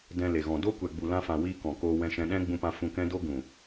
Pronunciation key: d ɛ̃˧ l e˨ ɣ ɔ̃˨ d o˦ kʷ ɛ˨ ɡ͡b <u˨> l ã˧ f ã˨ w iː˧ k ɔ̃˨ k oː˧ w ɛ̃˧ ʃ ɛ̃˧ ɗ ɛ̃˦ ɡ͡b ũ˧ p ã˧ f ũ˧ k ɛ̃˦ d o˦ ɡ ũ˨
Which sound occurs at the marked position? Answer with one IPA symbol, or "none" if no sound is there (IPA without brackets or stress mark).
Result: u˨